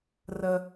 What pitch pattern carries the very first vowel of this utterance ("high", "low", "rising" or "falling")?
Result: low